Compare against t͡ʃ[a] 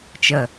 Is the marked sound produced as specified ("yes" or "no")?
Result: no